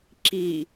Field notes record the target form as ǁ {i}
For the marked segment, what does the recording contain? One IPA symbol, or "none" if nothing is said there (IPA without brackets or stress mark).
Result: i